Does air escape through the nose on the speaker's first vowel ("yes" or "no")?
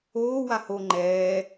no